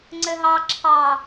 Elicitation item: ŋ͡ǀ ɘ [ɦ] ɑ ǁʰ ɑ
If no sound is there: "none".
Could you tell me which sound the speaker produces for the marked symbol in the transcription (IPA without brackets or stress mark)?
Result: ɦ